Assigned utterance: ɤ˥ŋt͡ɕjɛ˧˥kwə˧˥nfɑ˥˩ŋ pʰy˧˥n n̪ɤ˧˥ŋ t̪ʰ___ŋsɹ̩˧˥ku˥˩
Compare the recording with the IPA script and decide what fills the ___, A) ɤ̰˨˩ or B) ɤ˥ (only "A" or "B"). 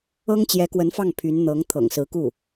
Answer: A